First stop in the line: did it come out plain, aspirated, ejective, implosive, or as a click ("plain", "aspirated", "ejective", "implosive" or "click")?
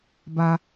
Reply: plain